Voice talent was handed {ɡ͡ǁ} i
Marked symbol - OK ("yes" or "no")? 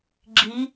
yes